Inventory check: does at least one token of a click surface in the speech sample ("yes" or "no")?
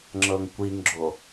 yes